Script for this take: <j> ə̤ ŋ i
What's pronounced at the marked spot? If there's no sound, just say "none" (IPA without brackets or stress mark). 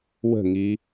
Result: w